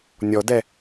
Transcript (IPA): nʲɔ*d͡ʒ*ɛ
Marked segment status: incorrect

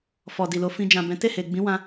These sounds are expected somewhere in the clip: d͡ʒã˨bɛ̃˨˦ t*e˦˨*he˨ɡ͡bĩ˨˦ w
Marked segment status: correct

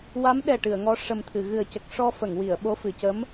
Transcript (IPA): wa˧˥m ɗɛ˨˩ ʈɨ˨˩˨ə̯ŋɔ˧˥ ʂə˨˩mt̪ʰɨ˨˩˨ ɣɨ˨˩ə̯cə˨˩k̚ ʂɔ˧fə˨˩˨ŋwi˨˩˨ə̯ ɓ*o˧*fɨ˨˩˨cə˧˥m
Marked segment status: incorrect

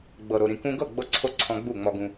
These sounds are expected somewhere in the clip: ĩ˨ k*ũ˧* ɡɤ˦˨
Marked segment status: correct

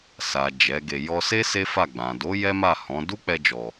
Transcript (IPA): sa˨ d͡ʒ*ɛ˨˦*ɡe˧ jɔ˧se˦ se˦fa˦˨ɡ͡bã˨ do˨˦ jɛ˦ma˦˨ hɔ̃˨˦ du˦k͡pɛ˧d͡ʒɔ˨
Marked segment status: correct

